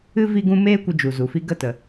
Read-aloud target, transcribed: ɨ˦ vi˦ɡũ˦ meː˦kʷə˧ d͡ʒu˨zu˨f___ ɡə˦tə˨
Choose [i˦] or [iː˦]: i˦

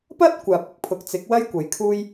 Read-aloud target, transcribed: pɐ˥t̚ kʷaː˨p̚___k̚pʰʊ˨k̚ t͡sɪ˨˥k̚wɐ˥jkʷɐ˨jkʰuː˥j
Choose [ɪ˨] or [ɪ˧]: ɪ˨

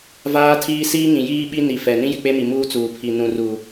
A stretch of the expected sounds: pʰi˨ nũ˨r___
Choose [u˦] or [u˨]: u˨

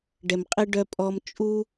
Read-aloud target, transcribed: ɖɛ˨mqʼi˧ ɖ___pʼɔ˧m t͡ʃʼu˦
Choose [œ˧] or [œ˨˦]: œ˧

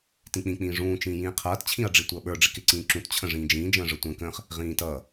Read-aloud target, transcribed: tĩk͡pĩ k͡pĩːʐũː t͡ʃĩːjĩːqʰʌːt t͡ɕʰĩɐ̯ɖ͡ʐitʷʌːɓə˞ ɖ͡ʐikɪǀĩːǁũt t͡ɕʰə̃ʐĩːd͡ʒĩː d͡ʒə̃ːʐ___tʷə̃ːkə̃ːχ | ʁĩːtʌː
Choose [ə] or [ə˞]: ə˞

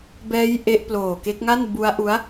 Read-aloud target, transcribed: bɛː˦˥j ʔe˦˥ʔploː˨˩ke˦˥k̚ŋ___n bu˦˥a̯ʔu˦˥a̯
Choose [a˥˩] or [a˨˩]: a˥˩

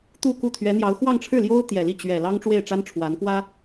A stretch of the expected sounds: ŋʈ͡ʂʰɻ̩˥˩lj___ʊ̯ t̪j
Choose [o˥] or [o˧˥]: o˥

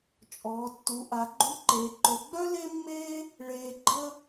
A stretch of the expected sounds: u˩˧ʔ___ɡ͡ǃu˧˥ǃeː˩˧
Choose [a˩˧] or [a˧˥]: a˩˧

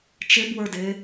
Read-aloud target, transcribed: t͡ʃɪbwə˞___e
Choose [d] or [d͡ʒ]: d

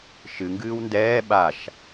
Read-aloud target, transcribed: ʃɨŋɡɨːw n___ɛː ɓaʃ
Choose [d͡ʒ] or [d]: d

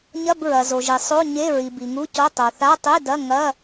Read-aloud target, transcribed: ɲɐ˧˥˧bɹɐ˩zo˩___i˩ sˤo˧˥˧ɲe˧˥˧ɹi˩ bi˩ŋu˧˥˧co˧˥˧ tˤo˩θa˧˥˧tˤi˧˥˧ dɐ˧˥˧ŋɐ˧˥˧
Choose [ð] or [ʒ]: ʒ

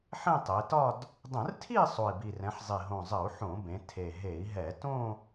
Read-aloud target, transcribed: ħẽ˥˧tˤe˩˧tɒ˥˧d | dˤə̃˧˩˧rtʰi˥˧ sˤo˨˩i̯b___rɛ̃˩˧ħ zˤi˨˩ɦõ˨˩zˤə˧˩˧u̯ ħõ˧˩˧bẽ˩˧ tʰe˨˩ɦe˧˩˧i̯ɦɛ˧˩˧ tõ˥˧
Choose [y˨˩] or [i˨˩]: i˨˩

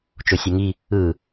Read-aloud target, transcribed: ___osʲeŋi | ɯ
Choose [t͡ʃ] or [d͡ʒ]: t͡ʃ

